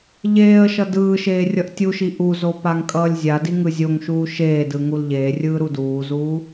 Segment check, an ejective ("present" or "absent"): present